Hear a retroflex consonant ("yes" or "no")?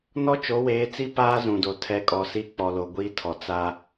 no